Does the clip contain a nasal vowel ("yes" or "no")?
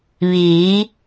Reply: no